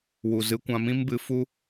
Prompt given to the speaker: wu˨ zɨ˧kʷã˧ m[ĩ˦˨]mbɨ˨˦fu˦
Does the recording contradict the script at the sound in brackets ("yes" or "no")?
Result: yes